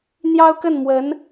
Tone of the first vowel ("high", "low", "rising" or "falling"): high